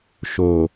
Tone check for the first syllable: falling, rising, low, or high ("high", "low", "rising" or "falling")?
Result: low